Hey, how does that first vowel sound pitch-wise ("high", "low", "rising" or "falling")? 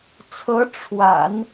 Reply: rising